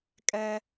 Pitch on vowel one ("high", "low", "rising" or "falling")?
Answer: high